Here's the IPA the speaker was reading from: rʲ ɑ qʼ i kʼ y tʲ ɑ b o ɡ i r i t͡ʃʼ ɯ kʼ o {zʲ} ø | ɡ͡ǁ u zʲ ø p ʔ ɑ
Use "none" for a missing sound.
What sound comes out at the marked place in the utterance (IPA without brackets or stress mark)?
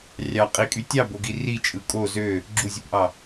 z